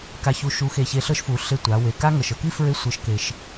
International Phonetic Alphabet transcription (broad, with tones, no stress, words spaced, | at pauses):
ka˧çu˧ ʃu˧˥xe˧ çe˧ɬɤ˥ʃfu˩˧ ɬe˧tʷa˩˧ we˩ ka˥ŋɤ˩ʃ ɤ˧ki˥fɹe˧˥ sʷɤ˩˧ʃke˩ʃ